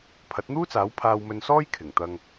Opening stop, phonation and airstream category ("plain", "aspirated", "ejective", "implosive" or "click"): aspirated